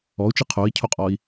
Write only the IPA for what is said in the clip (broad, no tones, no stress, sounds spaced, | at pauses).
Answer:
ɔ u̯ t͡ʃ ɨ qʰ o i̯ cʰ o qʼ ɔ i̯